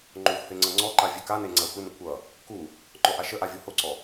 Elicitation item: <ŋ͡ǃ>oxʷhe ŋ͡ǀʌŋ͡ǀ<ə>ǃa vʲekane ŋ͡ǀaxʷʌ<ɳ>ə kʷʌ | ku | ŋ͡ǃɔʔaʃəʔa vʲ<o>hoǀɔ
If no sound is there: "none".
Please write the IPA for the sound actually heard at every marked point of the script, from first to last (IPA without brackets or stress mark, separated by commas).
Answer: ŋ͡ǃ, ɔ, n, o